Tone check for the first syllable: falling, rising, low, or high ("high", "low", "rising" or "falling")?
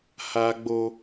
low